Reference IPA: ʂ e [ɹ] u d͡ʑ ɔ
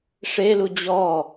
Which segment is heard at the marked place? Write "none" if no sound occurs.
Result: l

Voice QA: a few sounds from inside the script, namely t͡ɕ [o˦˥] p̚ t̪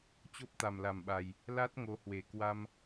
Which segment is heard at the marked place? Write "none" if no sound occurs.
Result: o˦˥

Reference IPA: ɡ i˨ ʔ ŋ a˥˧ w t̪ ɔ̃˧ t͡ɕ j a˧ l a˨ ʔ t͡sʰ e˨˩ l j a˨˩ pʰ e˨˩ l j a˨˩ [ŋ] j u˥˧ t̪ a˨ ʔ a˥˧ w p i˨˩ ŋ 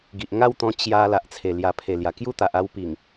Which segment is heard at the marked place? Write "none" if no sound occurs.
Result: k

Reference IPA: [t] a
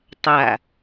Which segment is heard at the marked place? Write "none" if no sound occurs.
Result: tˤ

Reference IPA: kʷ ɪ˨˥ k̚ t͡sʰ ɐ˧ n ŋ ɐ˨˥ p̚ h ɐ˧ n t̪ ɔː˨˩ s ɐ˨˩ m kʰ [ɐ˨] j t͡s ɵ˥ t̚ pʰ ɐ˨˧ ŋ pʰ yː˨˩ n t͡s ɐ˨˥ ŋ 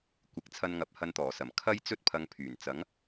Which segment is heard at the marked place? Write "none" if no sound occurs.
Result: ɐ˥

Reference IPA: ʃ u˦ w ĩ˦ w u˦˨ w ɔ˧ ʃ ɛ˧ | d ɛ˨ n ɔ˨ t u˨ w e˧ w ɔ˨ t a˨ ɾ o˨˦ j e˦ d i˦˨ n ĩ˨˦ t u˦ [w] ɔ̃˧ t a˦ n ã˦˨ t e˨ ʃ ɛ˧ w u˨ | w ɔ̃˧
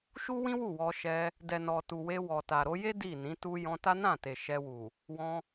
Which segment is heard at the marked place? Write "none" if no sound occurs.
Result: j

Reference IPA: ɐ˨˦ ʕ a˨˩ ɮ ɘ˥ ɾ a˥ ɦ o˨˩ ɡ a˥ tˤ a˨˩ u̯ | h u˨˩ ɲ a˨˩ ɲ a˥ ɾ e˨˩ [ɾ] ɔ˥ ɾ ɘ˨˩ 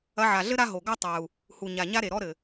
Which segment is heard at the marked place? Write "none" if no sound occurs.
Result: ɾ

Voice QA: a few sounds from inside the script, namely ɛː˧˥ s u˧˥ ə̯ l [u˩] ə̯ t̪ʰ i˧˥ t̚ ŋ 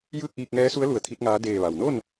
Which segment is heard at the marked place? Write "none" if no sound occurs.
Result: u˧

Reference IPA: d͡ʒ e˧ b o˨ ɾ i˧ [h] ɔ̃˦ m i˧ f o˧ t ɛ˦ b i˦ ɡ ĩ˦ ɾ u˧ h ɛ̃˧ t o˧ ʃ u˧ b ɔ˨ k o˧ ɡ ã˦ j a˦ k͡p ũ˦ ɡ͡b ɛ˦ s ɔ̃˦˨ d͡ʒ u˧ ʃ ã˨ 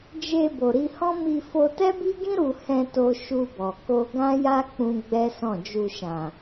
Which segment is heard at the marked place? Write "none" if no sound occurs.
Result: h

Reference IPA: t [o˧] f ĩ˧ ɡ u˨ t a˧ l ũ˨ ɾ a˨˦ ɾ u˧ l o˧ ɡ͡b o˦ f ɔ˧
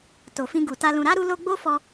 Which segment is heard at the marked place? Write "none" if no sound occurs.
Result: o˨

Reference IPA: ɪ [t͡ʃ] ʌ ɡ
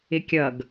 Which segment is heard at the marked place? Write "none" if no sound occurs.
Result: kʲ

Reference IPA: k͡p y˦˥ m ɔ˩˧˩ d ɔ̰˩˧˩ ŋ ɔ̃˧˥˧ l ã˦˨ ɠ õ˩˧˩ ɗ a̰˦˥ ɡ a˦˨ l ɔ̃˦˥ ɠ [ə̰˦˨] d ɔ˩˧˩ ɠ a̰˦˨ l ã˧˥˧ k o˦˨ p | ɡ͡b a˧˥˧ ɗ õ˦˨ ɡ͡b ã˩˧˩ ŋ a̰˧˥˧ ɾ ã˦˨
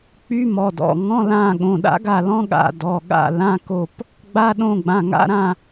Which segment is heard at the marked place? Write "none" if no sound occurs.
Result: a̰˦˨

